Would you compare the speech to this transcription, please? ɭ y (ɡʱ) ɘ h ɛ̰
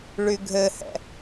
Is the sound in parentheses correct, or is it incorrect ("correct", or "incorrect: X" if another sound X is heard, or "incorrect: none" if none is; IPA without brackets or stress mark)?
correct